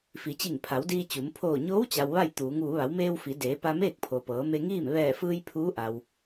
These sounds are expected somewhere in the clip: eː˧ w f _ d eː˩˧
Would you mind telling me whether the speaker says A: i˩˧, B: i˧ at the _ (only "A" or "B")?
A